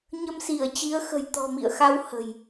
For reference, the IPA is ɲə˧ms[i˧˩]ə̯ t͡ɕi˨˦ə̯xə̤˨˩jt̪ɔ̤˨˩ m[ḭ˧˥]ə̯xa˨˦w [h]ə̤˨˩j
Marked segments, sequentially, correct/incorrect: correct, incorrect, correct

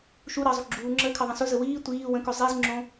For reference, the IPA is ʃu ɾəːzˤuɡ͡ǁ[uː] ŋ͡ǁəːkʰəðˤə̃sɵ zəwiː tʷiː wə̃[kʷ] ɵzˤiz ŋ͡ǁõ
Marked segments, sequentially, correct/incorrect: correct, incorrect

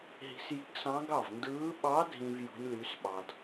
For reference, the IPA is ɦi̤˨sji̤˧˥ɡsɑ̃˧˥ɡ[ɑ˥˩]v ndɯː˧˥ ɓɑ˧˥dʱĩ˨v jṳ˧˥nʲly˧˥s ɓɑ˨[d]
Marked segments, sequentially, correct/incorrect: correct, correct

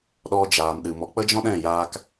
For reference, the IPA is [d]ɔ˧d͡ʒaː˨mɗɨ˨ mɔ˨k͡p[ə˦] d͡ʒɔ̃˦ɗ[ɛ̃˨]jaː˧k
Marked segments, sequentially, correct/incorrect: incorrect, correct, incorrect

